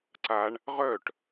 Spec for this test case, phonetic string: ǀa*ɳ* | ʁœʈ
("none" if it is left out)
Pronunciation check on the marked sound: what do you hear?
ɳ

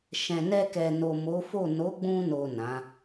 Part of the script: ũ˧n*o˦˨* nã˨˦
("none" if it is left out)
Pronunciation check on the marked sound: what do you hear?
o˨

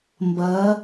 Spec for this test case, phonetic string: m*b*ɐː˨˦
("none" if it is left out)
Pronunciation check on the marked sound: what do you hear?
b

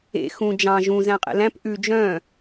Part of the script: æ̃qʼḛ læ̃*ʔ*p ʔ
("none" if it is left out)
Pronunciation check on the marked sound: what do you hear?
none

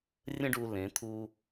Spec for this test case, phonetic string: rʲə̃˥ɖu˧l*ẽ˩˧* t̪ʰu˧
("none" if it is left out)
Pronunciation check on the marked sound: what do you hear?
ẽ˩˧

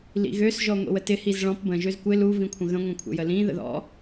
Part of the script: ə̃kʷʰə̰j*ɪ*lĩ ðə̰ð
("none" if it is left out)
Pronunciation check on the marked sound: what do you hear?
ə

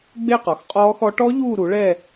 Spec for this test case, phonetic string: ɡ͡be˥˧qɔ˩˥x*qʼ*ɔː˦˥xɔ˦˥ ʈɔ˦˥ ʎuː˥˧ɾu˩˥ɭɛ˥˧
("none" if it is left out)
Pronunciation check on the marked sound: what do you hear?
qʼ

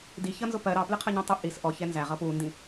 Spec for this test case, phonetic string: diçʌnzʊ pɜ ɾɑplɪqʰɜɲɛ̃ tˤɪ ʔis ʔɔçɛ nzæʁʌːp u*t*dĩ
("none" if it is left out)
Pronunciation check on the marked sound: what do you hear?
n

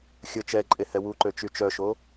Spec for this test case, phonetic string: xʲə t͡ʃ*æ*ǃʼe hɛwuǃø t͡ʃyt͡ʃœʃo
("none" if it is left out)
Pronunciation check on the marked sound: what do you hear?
ɛ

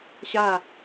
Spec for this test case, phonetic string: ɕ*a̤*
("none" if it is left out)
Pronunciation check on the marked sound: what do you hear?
a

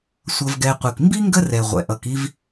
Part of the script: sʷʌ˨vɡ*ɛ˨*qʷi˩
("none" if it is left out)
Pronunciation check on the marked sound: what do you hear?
ɛ˨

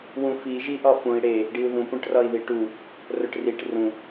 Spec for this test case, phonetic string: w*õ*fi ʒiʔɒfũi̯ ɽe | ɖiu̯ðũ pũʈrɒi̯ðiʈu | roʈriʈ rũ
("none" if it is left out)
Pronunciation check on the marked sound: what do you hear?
ũ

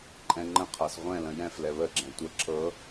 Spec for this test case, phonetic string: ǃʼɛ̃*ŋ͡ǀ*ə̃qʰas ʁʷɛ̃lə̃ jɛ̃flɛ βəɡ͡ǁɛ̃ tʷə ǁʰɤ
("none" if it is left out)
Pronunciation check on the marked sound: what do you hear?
ŋ͡ǃ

